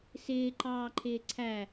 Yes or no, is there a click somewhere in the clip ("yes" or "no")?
yes